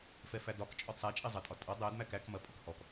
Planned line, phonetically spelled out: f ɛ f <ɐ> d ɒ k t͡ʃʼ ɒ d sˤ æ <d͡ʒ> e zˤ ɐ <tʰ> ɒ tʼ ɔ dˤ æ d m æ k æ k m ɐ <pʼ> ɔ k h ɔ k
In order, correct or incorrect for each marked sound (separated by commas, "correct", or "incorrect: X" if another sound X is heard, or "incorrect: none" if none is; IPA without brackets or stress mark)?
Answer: incorrect: æ, incorrect: t͡ʃʼ, incorrect: tʼ, correct